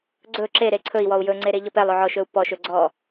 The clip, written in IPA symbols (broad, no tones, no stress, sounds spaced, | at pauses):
ɡ͡ǀ ɵ ǁ e ɾ e ǀʰ ɵ i̯ w ɔ u̯ j ɵ ŋ͡ǀ e ɾ e ʎ ɔ p ɛ lˠ ɵ ʕ ɔ ʃ ɵ u̯ p ɔ ʃ ɵ ɡ͡ǀ ɔ